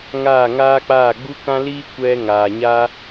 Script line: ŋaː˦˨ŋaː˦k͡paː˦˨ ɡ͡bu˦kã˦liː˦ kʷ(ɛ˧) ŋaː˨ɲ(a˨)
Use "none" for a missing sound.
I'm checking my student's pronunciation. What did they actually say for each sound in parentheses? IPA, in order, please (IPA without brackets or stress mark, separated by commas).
ɛ˧, a˦